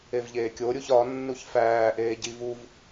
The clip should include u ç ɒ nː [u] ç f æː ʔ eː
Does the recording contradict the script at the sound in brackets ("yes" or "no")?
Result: no